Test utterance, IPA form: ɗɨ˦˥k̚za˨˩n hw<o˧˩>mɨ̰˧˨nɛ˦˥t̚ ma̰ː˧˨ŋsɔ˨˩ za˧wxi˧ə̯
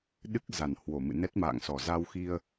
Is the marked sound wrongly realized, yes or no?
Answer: no